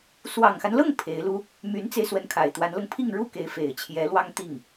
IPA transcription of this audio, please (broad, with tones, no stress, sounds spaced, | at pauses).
s w ɑ˨˩ ŋ x a˦ n l ɤ˥˩ ŋ pʰ e˧˥ ɪ̯ l u˥ | m y˧˥ n t͡s e˧ ɪ̯ s w ə˧˥ n kʰ a˨˩ ɪ̯ t̪ w a˧˥ n l ɤ˧ ŋ pʰ i˥˧ ŋ ɻ u˥˩ k e˧˥ ɪ̯ f e˨˩ ɪ̯ t͡ɕʰ j ɛ˧˥ l w ɑ˥ ŋ t̪ i˥˩ ŋ